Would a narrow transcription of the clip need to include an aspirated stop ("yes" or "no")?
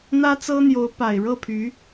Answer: yes